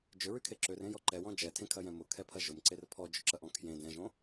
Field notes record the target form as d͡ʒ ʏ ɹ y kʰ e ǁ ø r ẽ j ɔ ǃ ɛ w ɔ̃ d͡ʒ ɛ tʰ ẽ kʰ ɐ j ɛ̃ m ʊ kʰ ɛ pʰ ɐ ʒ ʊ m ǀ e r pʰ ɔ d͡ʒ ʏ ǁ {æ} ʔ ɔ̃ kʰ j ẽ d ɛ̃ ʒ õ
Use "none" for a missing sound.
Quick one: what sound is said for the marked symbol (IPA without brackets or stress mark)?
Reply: ɐ